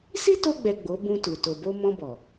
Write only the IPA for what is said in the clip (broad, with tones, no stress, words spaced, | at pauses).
si˦to˧ɡ͡bɛ˨ ɡ͡bo˨˦bũ˧tu˨ to˨bo˧ mɔ̃˧bɔ˨